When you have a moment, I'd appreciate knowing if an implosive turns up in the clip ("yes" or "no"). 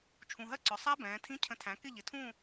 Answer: no